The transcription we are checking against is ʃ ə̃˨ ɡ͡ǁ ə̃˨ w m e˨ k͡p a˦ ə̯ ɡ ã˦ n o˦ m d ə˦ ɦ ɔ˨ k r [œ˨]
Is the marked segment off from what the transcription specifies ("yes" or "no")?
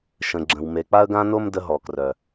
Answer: no